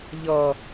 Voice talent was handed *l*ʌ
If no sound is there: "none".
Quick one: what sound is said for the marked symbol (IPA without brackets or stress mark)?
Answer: ʎ